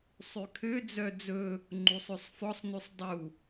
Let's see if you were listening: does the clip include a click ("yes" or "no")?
yes